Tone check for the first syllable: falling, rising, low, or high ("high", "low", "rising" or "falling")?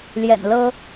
low